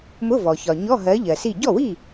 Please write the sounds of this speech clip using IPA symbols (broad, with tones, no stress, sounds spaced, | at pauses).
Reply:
m ʊ˧˥˧ v ɔ˩ ç ɒ˩ ɲ ɔ˧˥˧ ɦ ɜ˨˦ ʎ ɜ˩ s i˥˩ ɟ ɔ˥˩ w i˥˩